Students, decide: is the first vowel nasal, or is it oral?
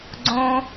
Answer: nasal